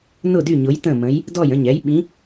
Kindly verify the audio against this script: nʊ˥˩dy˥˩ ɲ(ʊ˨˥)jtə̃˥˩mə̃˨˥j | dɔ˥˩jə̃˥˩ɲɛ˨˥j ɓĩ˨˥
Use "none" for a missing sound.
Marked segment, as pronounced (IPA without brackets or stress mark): ʊ˨˥